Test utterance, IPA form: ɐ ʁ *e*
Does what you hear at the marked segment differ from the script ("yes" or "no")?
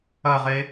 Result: no